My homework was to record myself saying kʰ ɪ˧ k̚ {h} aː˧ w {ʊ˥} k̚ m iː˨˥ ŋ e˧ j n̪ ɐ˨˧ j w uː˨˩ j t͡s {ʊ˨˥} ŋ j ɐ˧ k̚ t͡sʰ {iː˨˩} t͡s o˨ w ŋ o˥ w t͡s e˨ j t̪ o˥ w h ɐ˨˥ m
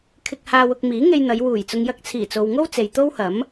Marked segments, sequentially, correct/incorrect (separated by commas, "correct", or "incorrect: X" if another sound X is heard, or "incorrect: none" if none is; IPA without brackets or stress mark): correct, incorrect: ʊ˧, incorrect: ʊ˨, correct